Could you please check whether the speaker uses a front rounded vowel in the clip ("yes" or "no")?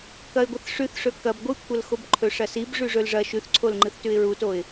no